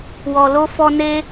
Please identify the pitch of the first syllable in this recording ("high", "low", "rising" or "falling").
low